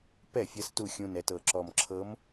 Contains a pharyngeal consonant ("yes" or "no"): no